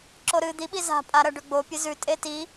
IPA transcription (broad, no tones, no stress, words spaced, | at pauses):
ǁoɾɨ d̪iɓi za̤pʼaɾɐ ɖɵɡ͡bo pʲɨzʉtʼe ti